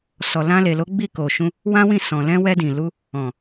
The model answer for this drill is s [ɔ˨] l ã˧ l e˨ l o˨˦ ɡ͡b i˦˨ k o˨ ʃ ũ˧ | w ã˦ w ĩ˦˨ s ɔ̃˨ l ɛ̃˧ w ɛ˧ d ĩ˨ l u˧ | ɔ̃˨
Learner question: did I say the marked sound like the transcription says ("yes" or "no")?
yes